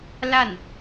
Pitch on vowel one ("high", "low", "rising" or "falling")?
falling